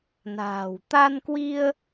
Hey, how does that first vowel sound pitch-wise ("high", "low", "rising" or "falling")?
low